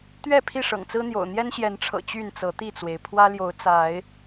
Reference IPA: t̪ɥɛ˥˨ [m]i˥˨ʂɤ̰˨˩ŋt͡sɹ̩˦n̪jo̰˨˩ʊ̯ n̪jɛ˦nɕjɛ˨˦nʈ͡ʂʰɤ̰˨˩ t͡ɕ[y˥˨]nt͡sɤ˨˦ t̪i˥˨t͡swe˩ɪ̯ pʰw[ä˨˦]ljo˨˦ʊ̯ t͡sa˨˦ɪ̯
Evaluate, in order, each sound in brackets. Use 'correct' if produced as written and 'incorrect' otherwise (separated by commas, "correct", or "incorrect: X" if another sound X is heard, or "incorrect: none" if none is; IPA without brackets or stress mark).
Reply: incorrect: pʰ, correct, incorrect: ä˦